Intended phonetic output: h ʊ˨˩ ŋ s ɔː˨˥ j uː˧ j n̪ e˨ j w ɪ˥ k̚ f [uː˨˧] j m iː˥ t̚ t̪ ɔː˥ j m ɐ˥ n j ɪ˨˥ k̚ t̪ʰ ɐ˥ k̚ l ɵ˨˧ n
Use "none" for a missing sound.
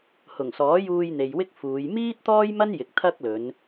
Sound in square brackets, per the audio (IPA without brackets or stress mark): uː˨˧